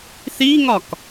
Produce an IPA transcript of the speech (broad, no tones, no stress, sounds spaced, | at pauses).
θ i ŋ ɒ k